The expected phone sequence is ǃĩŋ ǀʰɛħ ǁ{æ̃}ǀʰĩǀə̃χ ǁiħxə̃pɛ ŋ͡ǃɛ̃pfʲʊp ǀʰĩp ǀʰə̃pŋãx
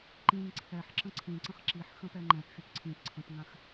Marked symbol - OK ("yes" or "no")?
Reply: no